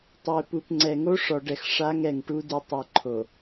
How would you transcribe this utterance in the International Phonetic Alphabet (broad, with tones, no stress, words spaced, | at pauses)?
tˤe˨pu˨pŋ͡ǀɛ˨ ŋo˦ʂɔ˨ɖɛ˨x ʂa˦ŋɛ˨ŋʈu˦ di˨tˤi˨ǃʰo˨